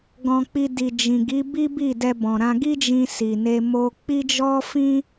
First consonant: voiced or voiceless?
voiced